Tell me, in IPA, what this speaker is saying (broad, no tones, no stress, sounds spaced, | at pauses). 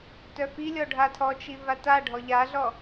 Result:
t œ f i lʲ ɔ ɖʱ a tʰ ɔ t͡ʃ i v a t a ɖʱ ɔ ʎ a ɮ ɔ